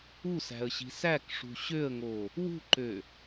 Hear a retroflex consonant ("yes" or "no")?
yes